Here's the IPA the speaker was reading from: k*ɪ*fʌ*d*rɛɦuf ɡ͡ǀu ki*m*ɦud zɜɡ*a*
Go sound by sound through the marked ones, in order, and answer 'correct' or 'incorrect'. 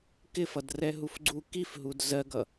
correct, correct, incorrect, incorrect

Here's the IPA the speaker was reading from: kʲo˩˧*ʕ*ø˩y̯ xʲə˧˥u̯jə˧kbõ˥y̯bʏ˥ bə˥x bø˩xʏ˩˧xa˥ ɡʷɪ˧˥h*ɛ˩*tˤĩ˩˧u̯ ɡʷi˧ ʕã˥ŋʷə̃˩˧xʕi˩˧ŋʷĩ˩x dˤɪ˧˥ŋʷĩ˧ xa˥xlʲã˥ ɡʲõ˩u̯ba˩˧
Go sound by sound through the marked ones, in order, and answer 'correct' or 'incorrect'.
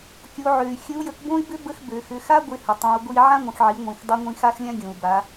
correct, incorrect

